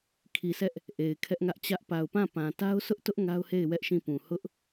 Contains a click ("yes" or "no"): no